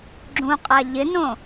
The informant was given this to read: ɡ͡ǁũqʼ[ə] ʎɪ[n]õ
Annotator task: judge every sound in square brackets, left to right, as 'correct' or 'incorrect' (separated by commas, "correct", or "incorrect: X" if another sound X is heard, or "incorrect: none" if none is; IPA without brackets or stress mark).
incorrect: a, correct